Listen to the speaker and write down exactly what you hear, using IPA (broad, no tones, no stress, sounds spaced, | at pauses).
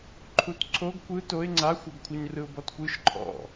ǃʰ u t ǀʰ o ɡ kʷ ɯ t o ɪ̯ ŋ͡ǀ a xʷ ɛ ɡ kʷʰ ɤ ɲ r ɯ ʊ̯ b ɔ t kʷ ɯ ʃ ǃʰ ɔ̰